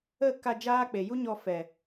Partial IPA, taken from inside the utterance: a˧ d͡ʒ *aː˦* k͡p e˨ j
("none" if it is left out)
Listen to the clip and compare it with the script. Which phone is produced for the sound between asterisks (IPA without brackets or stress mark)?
aː˦